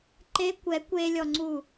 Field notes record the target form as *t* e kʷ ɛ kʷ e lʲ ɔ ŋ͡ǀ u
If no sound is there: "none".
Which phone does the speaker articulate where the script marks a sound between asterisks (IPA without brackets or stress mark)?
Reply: ǃ